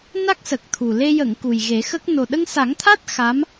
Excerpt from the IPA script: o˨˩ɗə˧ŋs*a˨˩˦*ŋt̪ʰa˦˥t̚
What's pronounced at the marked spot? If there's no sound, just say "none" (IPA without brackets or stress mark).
a˨˩˦